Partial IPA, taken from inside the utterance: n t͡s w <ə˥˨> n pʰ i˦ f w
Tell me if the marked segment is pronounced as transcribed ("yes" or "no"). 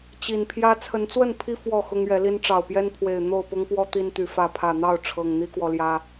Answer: yes